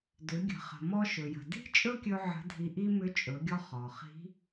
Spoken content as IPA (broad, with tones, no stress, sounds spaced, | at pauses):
d ʏ˩˧ ɡʲ ə̤˩ χ ə̤˩ m ɔ˧ ʃ ɵ˩ j ə̤˩ d i̤˥ t͡ʃʼ ɵ˥ kʲ ɵ˧ ʕ ə̤˧˥ dʱ i˧ ʔ i˥ m ʏ˧˥ t͡ʃʼ ɵ˩˧ ɡʲ ɔ˧ χ ɔ˩ χ i̤˧˥